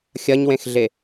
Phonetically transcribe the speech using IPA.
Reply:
xʲɐɲwẽxɮe

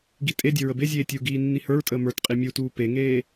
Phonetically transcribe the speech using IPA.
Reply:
ɡitʼedʲə ɹəbezʲeː tʲuɡiː nːihə˞ɹtʼəː mə˞tqʼi mʲutuː peŋeː

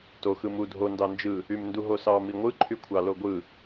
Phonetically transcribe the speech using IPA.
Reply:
to xɯmu dʱo ndɑnd͡ʒɯ | ymnduɦosɑ miŋʷɯ ǃʰykʷʰɑloɡʷɯ

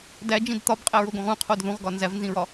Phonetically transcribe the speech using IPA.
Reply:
dæd͡ʒĩd t̪ɒbqʼæɹoɡõʁ ũqʰod ðũʁɡɒ nzævnzĩɹɒ

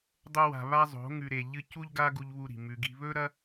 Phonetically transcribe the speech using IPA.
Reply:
dˤo˧ wa̤˨ βa˦zˤo̤˨˦ ŋʉ˨ɾe˨ ʎɨ˦ cu˦ʎɡa˦ɡu˧ʎ βu˧ɾi̤˨ mʉ˨ɡi̤˧ βɵ˦ɾɐ˦

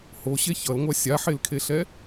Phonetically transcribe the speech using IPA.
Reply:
hoɕe çʌlŋʷa sʲaħelkʰeɬɛ

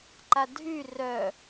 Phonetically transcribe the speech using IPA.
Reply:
ǃadʱy rœ

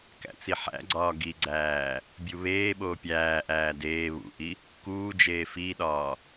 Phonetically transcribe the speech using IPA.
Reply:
kæ̰t͡siħæ̰ɡ͡ǀɒː ɡiɡ͡ǀæː | bʲuβeːɓoː pʲæːʔæː deː βṵʔi | kuːd͡ʒeː fiɗɒː

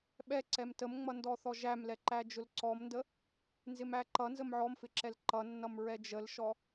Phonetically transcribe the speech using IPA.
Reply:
ɓɛ ǀɛmtəmŋ͡mʌndɔ θɔʒæmlɛǃæ d͡ʒʊlǀɔmndə | nzɪmæǃʌ nzəmʕɔmfɪǁɛl ǃʌnːʌm ɹɛd͡ʒəlʃɔ

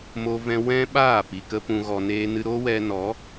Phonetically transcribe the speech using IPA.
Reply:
mo˧vɛ̃˧ wɛ̃˦ɓaː˦˨ pi˨kə˧ pũ˨ɣɔ˨ neː˧nɨ˧ ɾo˦ wɛ˧nɔ˨˦

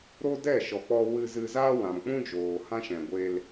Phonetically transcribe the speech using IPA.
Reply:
ɾo˦dɛ˦˨ʃɔ˨k͡pɔ˧ wɨ˧zɨ˧zaː˦ wã˨mk͡pũ˦ d͡ʒoː˨hã˦ʃɛ̃˨ ɡʷe˧l

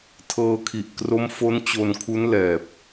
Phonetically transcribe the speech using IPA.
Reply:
tʰɤː˧kʰi˨˩ʔ kro˦˥mfo˦˥n t͡ɕo˧nkʰu˦˥n lɛː˨˩p̚

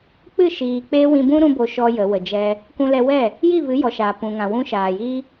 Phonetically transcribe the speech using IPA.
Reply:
k͡pɨ˦˨ʃiː˨ k͡pe˧ wĩ˧bũ˦ ɾũ˦bo˧ ʃɔ˦jə˨˦ wə˨d͡ʒɛ˧ | kũ˧lɛ˧wɛ˦˨ | ji˦˨ vɨ˨˦jɔ˨ʃa˨ pũ˨ŋã˨ wũ˧ ʃaː˨jiː˦

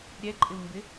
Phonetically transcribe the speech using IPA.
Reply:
ɾʲɛǃʼɪwmbɪ

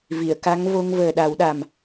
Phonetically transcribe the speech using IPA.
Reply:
vi˨˩˨ə̯ ka˧˥ŋvo˧ŋ vəː˨˩ɗa˨˩˦wɗa˨˩m

